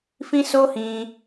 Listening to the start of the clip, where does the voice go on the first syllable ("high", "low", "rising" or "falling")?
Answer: high